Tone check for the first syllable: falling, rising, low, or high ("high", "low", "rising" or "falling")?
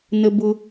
high